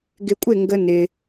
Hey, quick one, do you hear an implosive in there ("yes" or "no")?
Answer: no